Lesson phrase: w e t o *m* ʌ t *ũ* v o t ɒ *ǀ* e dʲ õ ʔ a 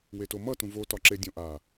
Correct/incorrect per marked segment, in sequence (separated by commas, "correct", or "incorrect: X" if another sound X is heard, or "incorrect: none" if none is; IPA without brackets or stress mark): correct, correct, incorrect: ǁ